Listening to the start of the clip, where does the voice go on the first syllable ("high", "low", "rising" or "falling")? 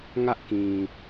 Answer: high